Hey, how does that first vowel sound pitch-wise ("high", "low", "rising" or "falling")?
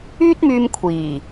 high